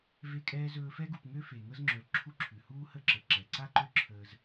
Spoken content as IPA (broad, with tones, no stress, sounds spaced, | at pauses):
v e˦ kʼ ɛː˥ z ɵː˦ f ɛ˥ ɡ u˨ p ŋ ø˥ f e˩ ŋ ɤ˥ z ŋ͡ǁ ɵː˨ l ǁʰ u˦ ǁʰ ʉ˩ h uː˥ h ə˦ ǁ ə˩ ǁ ɛ˩ ǀ a˥ ǃ ø˦ ǁʰ əː˨ z